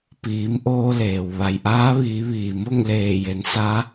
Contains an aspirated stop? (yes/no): no